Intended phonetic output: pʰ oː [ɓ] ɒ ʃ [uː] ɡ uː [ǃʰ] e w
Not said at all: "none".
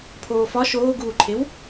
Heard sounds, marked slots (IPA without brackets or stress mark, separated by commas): f, oː, ǃʰ